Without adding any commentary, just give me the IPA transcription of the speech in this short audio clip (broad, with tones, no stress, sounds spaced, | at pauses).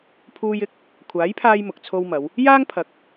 pʰ uː˧ j ɪ˨˥ k̚ | kʷʰ aː˨˥ j pʰ aː˧ j m ʊ˨ k̚ t͡sʰ o˧ w m ɐ˨˧ w | j aː˥ ŋ pʰ ɐ˨˥ k̚